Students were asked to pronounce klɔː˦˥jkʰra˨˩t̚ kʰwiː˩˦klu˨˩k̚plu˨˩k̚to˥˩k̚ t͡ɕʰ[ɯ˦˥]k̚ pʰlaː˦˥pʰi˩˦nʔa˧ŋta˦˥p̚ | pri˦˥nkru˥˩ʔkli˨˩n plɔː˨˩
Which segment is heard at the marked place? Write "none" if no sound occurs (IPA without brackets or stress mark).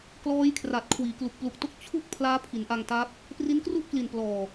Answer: u˦˥